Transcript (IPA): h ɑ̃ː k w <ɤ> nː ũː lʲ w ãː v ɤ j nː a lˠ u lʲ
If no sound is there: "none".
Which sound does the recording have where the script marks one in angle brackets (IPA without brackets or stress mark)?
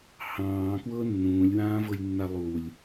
ɤ